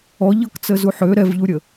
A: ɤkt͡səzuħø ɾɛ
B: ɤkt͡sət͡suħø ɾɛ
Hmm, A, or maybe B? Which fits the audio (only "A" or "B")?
A